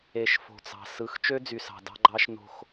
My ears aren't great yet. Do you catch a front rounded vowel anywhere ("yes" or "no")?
yes